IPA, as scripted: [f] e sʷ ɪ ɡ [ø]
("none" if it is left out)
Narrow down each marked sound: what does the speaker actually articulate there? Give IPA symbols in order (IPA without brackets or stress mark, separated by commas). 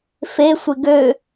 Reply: f, ø